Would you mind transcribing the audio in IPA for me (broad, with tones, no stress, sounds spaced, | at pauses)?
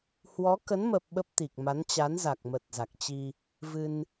h w ɔ˨˦ k ə˨˦ n m ə˨˩ p̚ ɓ ə˦˥ p̚ t̪ i˨˩ k̚ m a˨˦ n t͡ɕ a˨˦ n z a˨˩ k̚ m ə˨˩ t̚ z a˨˩ k̚ t͡ɕ i˧ | v ɨ˧ n